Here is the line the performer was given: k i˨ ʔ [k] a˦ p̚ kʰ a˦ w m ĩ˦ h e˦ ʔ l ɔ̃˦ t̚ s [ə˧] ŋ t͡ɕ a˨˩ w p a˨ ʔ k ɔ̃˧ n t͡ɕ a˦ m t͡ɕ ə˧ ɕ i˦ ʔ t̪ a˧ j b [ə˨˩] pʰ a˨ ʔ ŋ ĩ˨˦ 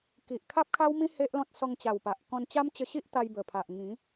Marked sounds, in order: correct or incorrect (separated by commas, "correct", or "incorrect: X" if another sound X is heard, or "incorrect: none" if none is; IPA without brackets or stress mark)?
incorrect: kʰ, incorrect: ɔ˧, correct